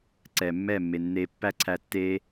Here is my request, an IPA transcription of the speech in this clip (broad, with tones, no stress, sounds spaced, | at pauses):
ǀ ɛː˨ mː ɛː˦˨ mː e˨ nː eː˧ pː æ˦ ǀʰ æ˧ tː eː˦